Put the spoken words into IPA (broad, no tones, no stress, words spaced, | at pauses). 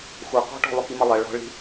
xʷɐ qɔ̤ʈɔ̤ lˠʊkimɐlˠɐ ɭɔ̤ɭi̤